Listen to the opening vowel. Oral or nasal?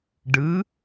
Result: oral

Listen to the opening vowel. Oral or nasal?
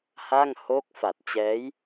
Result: oral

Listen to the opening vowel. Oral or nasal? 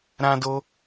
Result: nasal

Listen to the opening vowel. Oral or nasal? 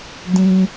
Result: nasal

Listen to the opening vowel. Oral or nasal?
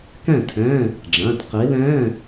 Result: nasal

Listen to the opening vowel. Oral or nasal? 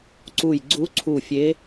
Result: oral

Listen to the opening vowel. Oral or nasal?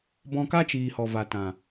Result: nasal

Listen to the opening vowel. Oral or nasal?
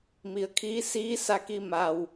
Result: oral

